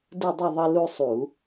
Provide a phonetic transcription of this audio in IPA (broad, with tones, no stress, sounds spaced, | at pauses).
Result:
d ɯ˥˨ dˤ ɯ˥˨ ðˤ ʌ˦ l u˦ sˤ u˧˩˧